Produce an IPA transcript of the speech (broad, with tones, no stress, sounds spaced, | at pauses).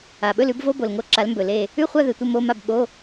a˨˩ ɓ ɵ˥˨ l ʉ˨˥ b v o˧˥˧ b o˨˩ l ŋ o˥˨ ǁ a˨˥ l m b ɵ˨˩ l e˥˨ | ʉ˥˨ χʷ a˥˨ ð ɨ˨˩ tʷ ɐ˥˨ m o˧˥˧ m a˥˨ b ɓ o˧˥˧